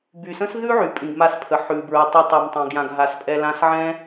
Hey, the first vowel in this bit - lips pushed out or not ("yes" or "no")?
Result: yes